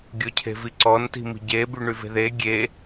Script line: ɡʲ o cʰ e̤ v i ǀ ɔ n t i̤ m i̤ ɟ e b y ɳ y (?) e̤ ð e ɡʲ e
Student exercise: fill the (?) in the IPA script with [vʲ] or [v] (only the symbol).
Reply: v